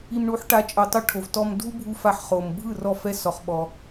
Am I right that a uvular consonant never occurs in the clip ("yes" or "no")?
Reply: no